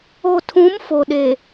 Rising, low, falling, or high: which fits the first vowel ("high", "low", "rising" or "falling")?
low